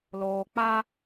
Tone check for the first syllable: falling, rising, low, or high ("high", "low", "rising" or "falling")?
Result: low